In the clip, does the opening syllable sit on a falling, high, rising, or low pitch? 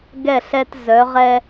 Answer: falling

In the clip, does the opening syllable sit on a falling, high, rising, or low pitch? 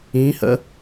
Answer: rising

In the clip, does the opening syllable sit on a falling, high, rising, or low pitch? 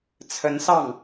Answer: rising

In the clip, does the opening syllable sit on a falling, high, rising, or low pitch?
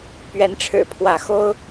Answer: rising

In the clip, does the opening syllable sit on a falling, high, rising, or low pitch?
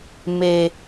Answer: low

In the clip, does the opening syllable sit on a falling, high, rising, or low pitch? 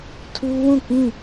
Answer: high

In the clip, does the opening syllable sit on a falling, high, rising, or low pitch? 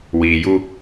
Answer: low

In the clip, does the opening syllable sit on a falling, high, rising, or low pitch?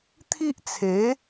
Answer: high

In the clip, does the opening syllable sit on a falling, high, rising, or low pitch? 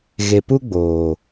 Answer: low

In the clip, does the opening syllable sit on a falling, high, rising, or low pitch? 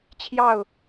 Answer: falling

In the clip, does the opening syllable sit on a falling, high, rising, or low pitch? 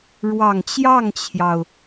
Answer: low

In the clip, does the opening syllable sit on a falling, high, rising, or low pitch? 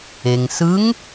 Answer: low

